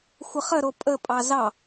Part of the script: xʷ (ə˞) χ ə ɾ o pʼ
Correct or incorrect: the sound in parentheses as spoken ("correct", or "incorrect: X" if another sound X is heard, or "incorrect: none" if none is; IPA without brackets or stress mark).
incorrect: ə